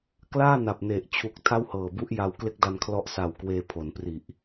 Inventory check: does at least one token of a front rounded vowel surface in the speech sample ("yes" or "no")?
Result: no